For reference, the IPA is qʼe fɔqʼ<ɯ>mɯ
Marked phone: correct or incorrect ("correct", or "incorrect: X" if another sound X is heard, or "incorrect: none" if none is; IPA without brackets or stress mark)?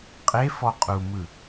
incorrect: u